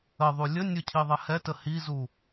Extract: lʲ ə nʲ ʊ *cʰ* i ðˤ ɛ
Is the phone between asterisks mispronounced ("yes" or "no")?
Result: no